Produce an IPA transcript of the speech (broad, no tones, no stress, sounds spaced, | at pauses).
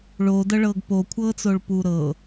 ɭ oː d ɤ ɭ ɤː ɡ p o kʷʰ ɤː t͡s o ɭ p uː ɾ ɤ